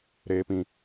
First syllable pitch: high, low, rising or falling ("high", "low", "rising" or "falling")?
high